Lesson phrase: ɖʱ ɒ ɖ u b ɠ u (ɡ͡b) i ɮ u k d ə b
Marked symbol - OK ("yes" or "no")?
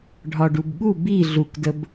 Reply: no